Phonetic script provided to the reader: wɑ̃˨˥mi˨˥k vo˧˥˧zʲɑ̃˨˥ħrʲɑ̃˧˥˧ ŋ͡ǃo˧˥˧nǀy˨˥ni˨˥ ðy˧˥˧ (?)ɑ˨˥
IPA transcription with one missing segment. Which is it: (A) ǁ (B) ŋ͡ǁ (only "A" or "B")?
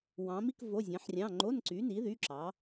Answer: A